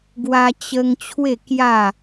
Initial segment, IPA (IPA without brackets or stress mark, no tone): ɡ